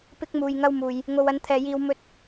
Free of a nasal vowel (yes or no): yes